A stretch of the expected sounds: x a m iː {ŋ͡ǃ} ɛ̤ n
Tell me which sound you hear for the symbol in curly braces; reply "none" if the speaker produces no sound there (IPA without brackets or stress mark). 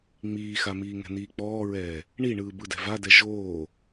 ŋ